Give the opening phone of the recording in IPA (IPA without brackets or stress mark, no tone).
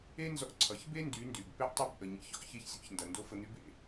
e